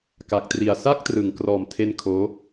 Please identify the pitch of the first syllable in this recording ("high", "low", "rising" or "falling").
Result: low